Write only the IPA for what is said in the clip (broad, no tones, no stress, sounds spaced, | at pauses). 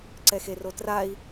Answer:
ǀ ɛ x e r o t r a i̯